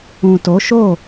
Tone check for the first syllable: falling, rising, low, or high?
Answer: low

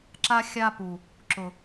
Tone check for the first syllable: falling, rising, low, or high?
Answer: high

